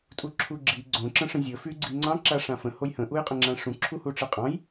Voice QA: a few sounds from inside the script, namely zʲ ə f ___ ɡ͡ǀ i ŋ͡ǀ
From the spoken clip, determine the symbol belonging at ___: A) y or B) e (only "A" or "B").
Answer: A